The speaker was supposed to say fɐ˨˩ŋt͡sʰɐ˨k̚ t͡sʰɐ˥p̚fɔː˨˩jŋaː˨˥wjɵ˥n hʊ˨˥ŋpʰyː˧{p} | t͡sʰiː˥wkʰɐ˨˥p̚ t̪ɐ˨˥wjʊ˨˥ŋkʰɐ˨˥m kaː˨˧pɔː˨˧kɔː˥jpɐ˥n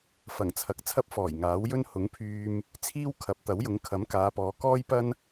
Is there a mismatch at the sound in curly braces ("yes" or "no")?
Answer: yes